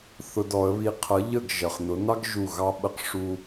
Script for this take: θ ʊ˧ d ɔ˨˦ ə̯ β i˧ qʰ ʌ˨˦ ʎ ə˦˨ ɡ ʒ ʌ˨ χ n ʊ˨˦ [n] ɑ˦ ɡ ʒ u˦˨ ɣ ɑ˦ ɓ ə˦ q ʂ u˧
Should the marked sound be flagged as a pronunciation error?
no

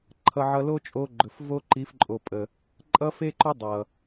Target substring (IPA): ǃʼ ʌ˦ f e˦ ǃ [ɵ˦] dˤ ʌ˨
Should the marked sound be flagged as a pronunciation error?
yes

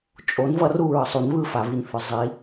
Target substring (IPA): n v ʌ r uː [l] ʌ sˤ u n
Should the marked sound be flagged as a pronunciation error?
yes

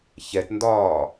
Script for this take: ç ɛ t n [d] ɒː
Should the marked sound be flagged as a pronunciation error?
no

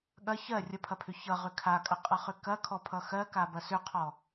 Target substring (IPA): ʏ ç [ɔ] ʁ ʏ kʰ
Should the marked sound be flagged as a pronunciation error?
yes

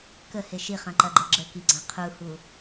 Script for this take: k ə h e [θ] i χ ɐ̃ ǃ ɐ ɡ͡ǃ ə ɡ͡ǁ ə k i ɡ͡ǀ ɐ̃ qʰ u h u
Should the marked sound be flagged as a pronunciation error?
yes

